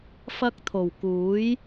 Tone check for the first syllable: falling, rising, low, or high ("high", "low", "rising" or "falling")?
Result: high